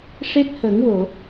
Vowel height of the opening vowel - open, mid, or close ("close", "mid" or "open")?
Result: mid